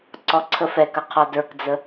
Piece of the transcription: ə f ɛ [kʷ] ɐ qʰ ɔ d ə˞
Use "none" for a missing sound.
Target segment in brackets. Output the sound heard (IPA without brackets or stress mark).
k